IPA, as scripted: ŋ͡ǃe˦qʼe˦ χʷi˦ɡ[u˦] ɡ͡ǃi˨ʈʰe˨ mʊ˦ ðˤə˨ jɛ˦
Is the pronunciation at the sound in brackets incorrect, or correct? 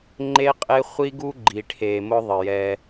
correct